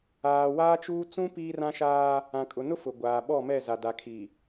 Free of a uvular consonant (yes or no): yes